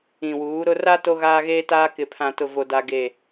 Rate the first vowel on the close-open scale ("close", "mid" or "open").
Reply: close